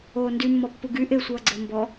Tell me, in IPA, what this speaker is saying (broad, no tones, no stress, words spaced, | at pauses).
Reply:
oːndy mːɔpːuɡy ʔesʷʌːɡ͡ǀɘː mbɔ